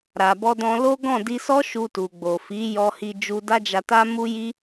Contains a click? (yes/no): no